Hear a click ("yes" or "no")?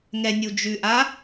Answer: no